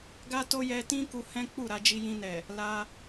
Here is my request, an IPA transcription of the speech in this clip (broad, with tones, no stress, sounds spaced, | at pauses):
ɡ a˦ t o˦ j ɛ˧ t ĩ˦ k u˧ h ɛ̃˦ k͡p u˦˨ ɾ a˧ d͡ʒ i˧ j ĩ˧ n ɛ˨ | l a˧